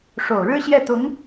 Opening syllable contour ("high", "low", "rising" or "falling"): low